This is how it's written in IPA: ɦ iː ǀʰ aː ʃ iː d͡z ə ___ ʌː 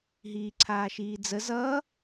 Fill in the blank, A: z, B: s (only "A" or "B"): A